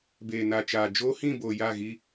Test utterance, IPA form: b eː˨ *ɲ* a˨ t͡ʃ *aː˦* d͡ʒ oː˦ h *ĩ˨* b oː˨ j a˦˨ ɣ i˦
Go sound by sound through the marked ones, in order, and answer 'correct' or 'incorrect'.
incorrect, incorrect, incorrect

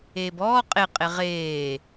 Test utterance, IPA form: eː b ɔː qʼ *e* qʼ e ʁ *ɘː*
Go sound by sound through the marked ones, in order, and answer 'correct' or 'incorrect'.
correct, incorrect

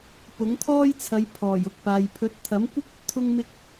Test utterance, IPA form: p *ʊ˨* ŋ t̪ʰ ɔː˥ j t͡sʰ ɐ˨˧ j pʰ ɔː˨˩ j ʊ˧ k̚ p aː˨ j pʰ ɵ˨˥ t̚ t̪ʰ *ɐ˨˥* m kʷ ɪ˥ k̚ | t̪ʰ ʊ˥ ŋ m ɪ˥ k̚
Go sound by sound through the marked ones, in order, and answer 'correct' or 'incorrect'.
incorrect, correct

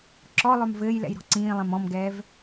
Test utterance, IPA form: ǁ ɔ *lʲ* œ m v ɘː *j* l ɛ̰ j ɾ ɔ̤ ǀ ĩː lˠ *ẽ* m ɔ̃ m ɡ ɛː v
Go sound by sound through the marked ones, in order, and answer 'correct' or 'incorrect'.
incorrect, correct, incorrect

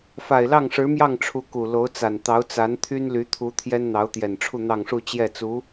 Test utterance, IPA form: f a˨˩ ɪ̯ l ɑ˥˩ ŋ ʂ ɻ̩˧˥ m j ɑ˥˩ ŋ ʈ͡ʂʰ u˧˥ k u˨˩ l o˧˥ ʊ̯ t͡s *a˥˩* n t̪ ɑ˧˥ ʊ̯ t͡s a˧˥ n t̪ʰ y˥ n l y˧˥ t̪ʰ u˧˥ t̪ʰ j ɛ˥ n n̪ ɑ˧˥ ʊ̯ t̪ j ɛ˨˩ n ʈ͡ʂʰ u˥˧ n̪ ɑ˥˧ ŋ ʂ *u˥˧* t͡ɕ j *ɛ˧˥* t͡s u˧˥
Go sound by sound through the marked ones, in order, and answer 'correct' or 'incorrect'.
incorrect, correct, incorrect

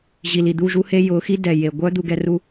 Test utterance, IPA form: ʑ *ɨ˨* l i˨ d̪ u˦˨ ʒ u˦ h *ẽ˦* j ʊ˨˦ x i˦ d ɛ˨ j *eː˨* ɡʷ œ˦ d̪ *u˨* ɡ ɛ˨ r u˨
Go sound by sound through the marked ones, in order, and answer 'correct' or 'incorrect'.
incorrect, incorrect, incorrect, correct

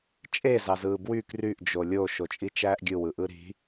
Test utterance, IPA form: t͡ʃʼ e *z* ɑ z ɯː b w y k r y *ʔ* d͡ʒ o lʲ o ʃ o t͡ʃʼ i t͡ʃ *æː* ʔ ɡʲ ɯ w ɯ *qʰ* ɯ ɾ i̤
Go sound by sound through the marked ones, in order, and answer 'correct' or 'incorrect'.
correct, correct, correct, incorrect

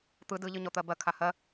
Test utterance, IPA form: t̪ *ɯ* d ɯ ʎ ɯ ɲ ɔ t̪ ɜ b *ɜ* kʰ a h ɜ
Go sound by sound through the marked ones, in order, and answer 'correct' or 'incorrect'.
correct, correct

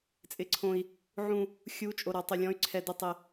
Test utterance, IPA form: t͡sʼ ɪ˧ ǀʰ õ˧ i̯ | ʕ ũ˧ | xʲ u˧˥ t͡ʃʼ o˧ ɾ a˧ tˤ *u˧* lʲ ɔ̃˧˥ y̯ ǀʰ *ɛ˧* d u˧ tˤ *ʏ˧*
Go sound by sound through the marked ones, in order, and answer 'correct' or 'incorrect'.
incorrect, correct, incorrect

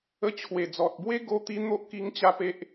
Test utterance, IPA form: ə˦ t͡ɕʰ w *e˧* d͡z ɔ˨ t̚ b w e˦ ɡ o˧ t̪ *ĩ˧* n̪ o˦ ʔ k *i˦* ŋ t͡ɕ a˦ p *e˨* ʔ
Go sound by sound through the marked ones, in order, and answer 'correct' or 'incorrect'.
incorrect, incorrect, incorrect, incorrect

